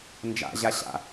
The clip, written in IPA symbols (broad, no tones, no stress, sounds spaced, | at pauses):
n d͡ʒ a̰ ʑ a ɕ a̰